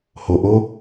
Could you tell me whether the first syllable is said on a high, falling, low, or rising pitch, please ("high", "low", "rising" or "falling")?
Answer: low